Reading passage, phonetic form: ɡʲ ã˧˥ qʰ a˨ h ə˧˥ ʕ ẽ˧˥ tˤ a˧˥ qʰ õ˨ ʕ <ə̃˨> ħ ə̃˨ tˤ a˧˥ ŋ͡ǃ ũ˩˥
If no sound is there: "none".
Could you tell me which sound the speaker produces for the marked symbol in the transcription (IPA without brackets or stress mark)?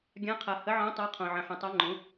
ə̃˨